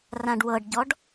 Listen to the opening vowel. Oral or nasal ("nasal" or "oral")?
nasal